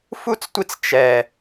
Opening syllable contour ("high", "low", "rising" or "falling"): high